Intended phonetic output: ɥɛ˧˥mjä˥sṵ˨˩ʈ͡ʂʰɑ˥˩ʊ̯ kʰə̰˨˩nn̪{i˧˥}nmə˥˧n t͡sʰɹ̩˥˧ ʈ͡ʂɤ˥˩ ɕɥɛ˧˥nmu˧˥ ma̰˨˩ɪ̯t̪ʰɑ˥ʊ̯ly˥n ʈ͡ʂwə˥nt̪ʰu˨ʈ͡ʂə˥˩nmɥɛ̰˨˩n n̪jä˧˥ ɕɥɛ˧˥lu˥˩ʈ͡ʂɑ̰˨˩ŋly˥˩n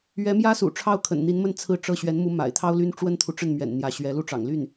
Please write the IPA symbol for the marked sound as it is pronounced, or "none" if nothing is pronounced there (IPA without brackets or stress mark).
i˧˥